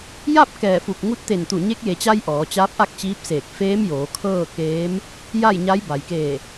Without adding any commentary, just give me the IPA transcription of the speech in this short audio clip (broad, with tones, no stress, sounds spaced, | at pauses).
j a˥˨ p̚ k ɛː˧˩ f u˧˩ k̚ ŋ u˧˥ t̚ t̪ e˧˩ n t̪ u˧˩ ɲ e˧˥ k̚ j e˩ t͡ɕ a˧ j ʔ ɔː˩˧ t͡ɕ aː˧˥ p̚ ʔ a˥˨ k̚ t͡ɕ iː˧˥ p̚ s eː˧˩ k̚ f eː˧˥ m j oː˩˧ kʰ ɤː˥˨ k eː˧˥ m | j a˥˨ j ɲ a˧˥ j b a˩ j k eː˧˩